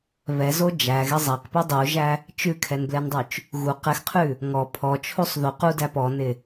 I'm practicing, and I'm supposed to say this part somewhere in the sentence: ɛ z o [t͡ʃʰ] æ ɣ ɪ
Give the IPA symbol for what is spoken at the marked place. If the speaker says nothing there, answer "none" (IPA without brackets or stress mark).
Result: d͡ʒ